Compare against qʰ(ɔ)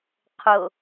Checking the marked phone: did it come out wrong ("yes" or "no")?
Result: yes